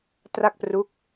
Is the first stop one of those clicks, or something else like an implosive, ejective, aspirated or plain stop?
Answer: plain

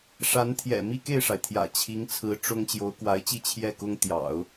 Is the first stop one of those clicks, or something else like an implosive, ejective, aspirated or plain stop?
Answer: aspirated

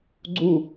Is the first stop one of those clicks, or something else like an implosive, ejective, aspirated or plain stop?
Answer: click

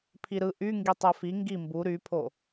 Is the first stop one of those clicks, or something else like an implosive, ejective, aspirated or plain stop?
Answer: aspirated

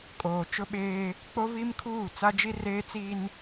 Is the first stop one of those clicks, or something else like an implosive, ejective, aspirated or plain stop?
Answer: ejective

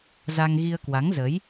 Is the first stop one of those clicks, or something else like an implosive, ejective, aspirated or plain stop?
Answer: plain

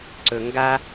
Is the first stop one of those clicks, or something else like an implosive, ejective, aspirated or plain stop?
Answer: click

